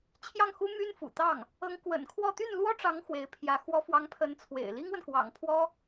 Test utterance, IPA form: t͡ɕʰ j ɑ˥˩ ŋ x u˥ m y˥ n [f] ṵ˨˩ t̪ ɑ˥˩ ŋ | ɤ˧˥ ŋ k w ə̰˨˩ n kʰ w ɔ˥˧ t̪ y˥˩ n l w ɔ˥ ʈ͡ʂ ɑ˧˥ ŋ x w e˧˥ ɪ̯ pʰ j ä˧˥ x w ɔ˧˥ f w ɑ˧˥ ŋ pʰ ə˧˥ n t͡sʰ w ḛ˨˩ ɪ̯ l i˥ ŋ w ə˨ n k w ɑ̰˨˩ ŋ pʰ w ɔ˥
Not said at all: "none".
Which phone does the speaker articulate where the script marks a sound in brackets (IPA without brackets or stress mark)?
f